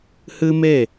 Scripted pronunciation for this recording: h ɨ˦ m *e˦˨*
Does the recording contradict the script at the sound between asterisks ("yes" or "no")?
no